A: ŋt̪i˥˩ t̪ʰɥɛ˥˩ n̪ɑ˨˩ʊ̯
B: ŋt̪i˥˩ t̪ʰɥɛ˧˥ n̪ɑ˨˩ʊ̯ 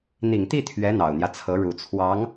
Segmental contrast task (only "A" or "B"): B